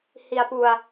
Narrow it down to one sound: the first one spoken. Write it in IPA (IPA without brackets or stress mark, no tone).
h